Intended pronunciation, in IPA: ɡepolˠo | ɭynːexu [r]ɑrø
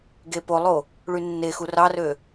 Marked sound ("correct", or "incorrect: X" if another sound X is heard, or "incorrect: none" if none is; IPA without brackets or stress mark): correct